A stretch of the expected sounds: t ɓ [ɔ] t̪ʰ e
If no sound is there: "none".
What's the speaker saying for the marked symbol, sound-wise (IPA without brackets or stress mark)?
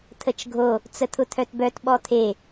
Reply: ɔ